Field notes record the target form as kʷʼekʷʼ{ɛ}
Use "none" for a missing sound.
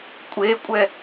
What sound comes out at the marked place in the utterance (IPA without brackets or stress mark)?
ɛ